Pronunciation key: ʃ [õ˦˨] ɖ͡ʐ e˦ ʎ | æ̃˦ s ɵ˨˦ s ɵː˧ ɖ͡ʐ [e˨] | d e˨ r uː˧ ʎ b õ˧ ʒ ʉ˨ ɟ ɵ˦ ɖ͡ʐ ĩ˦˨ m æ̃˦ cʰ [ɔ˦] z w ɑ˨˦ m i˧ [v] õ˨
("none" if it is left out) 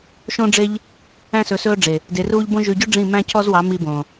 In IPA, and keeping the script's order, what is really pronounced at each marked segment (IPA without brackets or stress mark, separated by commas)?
õ˦, e˨, ɔ˦, b